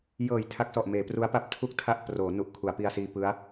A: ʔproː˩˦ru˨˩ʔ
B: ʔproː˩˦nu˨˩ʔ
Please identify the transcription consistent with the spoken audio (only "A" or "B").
B